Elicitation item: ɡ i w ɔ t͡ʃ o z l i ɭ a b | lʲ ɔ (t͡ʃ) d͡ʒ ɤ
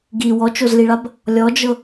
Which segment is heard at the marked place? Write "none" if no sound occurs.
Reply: none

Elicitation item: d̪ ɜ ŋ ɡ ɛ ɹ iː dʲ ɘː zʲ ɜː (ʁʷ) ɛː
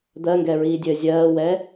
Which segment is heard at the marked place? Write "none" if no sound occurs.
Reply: w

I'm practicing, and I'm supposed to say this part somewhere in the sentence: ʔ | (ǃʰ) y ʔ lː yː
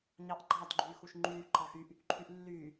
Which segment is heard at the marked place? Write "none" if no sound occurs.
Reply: ǃʰ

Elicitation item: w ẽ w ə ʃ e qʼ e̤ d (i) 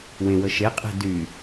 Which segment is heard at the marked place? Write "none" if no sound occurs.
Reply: y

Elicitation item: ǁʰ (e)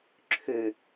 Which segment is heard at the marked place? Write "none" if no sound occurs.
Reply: ø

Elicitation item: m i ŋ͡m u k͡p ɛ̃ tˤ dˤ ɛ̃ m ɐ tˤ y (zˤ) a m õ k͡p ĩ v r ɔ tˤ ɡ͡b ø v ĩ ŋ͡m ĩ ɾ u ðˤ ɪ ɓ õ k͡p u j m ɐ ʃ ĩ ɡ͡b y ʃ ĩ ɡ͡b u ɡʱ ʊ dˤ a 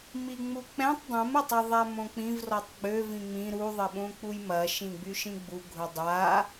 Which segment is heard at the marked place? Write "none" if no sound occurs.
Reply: ðˤ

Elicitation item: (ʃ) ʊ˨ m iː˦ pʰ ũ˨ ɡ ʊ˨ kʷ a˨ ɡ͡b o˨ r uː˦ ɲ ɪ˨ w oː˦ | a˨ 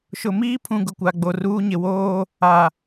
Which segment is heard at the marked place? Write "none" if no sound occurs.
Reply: ʃ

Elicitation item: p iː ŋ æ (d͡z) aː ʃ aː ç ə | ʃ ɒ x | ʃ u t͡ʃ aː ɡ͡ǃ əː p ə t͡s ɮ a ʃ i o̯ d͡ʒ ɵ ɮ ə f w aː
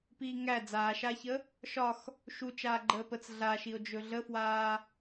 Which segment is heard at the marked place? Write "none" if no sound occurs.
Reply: d͡z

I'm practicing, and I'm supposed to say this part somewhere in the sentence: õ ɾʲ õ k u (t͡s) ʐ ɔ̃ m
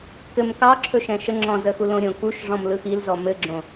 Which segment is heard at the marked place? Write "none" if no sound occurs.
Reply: ʃ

